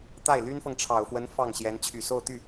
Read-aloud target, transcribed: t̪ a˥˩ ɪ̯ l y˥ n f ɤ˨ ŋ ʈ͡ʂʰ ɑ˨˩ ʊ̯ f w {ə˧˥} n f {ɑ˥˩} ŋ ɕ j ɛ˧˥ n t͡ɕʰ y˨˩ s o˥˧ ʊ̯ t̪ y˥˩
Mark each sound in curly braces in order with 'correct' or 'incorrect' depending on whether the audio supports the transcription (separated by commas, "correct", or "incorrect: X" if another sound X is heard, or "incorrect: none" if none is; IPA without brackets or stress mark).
correct, correct